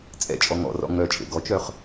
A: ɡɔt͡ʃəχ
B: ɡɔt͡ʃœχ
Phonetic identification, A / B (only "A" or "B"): B